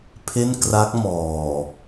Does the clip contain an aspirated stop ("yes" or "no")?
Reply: yes